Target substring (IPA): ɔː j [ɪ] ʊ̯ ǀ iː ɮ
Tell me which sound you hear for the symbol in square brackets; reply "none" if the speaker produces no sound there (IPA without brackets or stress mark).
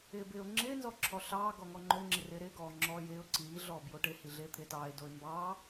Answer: ɪː